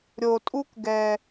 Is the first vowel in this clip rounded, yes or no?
yes